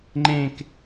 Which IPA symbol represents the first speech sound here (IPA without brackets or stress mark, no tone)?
ŋ͡ǃ